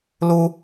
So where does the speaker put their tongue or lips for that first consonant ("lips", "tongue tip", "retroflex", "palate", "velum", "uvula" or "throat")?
tongue tip